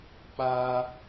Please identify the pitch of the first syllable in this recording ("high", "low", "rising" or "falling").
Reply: high